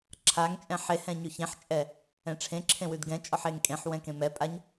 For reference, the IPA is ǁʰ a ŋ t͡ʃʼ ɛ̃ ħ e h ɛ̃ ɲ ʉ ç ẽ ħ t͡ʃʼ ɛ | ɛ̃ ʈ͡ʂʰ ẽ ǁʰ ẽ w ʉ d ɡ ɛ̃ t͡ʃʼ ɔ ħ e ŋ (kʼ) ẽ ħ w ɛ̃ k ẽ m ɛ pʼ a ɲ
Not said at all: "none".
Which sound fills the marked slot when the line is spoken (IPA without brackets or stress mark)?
kʼ